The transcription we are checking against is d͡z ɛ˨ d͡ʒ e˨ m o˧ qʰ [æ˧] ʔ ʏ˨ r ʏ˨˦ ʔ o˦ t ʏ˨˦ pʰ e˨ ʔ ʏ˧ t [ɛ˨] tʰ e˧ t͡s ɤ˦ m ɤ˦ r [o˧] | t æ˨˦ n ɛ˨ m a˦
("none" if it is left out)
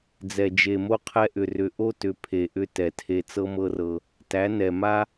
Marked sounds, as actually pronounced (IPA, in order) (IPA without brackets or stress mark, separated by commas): ɛ˧, ɛ˨, ɤ˧